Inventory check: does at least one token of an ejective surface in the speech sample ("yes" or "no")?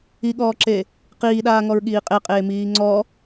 yes